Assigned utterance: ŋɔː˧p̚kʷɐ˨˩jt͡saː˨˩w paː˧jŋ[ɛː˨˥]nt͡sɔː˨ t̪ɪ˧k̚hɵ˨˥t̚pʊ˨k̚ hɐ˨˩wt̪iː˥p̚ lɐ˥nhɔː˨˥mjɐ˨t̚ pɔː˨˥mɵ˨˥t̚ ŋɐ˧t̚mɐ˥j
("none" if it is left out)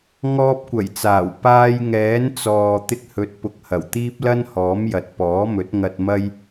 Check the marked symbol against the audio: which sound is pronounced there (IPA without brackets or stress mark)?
ɛː˨˥